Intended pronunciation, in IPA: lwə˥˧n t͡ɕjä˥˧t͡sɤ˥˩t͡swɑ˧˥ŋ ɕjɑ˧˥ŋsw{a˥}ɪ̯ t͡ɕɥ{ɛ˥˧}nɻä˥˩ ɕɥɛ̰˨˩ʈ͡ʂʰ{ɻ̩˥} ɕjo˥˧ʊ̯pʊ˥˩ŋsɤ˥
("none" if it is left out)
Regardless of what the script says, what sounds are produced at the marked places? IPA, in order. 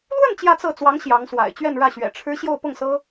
a̰˨˩, ɛ˥˧, ɻ̩˥

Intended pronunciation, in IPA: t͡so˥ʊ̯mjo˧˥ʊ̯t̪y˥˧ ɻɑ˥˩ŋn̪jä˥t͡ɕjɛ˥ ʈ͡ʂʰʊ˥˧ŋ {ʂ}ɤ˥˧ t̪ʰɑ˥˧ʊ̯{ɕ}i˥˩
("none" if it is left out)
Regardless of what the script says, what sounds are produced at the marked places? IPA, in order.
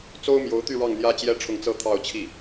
t͡s, t͡ɕʰ

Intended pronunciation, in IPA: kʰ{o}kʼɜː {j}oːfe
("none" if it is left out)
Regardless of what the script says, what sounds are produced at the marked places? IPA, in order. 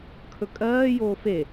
ɵ, j

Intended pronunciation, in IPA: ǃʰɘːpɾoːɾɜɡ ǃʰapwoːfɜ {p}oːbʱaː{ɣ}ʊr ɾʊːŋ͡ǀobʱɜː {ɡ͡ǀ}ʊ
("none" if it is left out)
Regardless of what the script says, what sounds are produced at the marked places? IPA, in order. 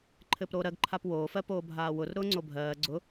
p, w, ɡ͡ǀ

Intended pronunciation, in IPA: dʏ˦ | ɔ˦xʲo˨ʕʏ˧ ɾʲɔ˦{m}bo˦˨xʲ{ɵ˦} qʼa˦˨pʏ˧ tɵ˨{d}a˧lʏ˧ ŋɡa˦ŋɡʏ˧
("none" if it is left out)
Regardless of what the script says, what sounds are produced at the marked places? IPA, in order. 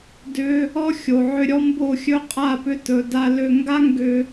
m, ɵ˦, d

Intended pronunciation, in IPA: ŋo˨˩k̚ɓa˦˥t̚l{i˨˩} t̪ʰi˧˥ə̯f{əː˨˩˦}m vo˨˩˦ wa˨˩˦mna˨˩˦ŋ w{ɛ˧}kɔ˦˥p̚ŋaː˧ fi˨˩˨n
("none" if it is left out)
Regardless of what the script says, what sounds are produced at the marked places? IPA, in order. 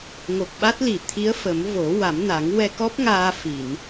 i˨˩, ə˨˩˦, ɛ˧

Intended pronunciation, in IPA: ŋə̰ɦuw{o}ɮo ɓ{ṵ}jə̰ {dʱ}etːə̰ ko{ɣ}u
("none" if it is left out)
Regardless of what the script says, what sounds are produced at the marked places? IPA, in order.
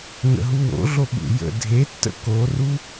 o̰, ṵ, dʱ, r

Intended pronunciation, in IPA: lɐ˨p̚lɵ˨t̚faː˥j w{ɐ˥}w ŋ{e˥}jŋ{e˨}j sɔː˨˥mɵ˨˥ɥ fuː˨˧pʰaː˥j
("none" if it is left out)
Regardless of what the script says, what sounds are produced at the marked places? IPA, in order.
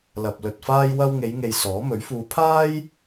ɐ˥, e˨˧, e˨

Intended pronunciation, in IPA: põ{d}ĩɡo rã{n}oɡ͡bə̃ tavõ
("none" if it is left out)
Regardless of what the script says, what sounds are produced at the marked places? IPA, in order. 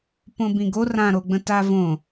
b, ɾ

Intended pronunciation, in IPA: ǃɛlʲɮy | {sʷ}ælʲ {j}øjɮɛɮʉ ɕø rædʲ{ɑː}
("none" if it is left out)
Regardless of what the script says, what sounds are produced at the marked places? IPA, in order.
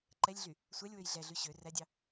sʷ, w, ɑ

